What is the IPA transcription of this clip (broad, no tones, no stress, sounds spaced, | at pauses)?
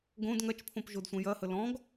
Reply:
ɡ õ d ŋ ɐ t͡ʃ pʰ õ p ʒ o d sʷ ɐ̃ j ɐ h ə l ɔ̃ ɡ